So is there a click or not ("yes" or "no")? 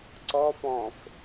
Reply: yes